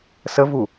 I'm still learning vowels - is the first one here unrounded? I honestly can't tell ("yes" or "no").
yes